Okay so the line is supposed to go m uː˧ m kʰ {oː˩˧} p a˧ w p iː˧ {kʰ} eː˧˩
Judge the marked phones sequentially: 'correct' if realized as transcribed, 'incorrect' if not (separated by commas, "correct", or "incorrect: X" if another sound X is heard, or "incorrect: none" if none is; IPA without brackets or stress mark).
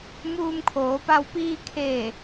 correct, correct